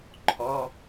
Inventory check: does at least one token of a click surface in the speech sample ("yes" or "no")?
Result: yes